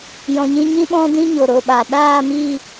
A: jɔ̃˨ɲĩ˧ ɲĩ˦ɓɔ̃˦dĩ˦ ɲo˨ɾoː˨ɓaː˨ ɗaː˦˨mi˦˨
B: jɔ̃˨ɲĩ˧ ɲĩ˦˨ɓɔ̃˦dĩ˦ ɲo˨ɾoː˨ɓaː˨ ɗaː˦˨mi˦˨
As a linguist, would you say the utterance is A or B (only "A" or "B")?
A